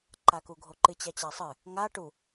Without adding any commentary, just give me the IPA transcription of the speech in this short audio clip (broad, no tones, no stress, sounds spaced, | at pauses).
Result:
ǃ a k u ɡʱ o ǃ ɨ t͡ɕ a t͡ɕ a sˤ ɨ | ŋ a ʈ u